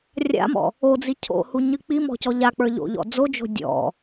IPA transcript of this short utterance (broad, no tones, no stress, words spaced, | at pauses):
rʲa̰mɔ̰ | od͡zi cʰo̰huɲɨ k͡pimɔ̤cɔ ʎak͡pə˞ʎo̰ʎɔ̰ d͡zod͡ʒo̤ dʲɔ̰